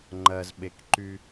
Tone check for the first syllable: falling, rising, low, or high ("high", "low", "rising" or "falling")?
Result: low